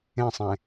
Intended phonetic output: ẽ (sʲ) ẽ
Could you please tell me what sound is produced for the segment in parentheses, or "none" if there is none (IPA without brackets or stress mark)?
sˤ